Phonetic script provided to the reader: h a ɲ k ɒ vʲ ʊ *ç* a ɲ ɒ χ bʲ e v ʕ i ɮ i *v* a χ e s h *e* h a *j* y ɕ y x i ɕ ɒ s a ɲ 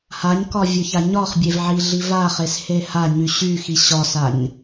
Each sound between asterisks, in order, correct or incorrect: correct, correct, correct, incorrect: ɲ

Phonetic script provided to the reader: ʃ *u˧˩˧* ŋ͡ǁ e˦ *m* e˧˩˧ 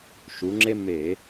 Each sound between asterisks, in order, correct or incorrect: incorrect: u˩˧, correct

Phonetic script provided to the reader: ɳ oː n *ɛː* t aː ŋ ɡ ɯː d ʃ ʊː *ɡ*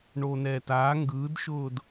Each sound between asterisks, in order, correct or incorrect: correct, incorrect: d

